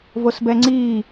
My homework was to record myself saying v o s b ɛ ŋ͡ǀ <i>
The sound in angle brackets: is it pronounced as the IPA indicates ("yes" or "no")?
no